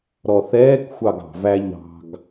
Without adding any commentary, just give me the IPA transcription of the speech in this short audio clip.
ɾ ɔ θ ɛː k xʷ ɑ ɡ ɑ̤ v æ ʎ ɑ̤ ɡ

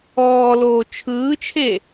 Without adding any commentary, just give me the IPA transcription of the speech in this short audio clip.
ɔː l oː t͡ʃʰ ɯː t͡ʃʰ e

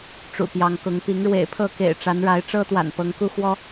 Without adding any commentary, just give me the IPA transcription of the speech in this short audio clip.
ʈ͡ʂ ṵ˨˩ p j ɑ˨˦ ŋ k ʊ˨˦ ŋ p i˨˦ ŋ ɻ w ḛ˨˩ ɪ̯ pʰ ɤ˥˨ k ḛ˨˩ ɪ̯ ʈ͡ʂ a˨˦ n ɻ a˨˦ ɪ̯ ʈ͡ʂ ɤ˦ t̪ w a̰˨˩ n p ɤ˨˦ ŋ k u˦ x w ɔ˦

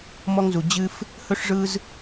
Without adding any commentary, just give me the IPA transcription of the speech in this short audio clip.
m ɔ˧ ŋ z u˨ d͡ʑ ɨ˧ f | h ɵ˧ ʂ ʐ ɯ˧ z

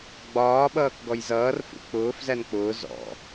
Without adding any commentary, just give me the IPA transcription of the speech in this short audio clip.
ɡ͡b ɒː ɓ ʌː k ɡ ɔ j z ʌː r f ṵ k͡p ʊː f z æ n k͡p ʊː z ɔ̰

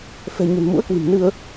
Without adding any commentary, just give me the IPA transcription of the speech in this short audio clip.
f ɛ̤˨˩ ɲ ə̤˨˩ n m ṵ˧˥ ə̯ k w i̤˨˩ m n ɨ˧ ə̯

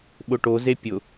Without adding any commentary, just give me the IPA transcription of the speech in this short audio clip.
ɓ ʊ ʈ o z e pʲ ʊ

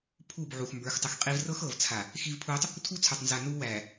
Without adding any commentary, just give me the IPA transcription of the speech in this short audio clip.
pʰ u˦˨ b ʕ u˨ x m b ə˞˨˦ x tˤ ə˨ x qʼ i˦ v r ɤ˦ x ɤ˨ v t͡sʰ a˨ | x i˦ v pʰ uː˦ tˤ | tʰ u˦ t͡sʰ ə˞˨ tˤ n z a˨ n u˦ w æː˨

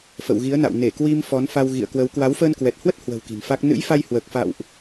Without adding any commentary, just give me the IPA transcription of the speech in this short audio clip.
f ə̰˧˨ w ɣ i˨˦ ə̯ n a̰˧˨ w n e˧˩ k w i˧ m f ɔ˨˦ n f a˧ w ɣ ḭ˧˨ ə̯ k w ə˨˦ w k w a˨˦ w f əː˧ n k w ɛ˨˩ t̚ h w ə˦˥ t̚ h w ə̤˨˩ w k i̤˨˩ n f a˦˥ k̚ n ɨ̰˧˥ j f a˧ j h w əː˨˩ k̚ f a̰˧˨ w ʔ

